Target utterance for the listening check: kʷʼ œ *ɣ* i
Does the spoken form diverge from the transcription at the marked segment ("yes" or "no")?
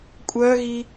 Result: no